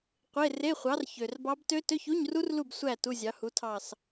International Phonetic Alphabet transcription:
qʷe˧˥˧ re˧˥˧χʷɑ˨˥r çø˨˩rbɑ˦˥b tø˦˥ tø˧˥˧çu˧˥˧ɲru˦˥rlu˦˨b sʷæ˦˨ tu˧˥˧zʲɑ˨˥hu˨˥tʰɑ˦˨s

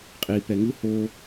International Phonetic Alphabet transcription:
qʼipɛ ŋɯ ho

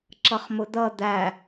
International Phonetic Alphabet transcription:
ǁʌχmʊd̪ʌ d̪æ

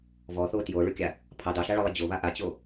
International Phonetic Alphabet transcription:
vɔθo tjoɭʉkʲa | pʰɑ dɑʃaɭɔlˠə d͡ʑoβa ʔat͡ɕo

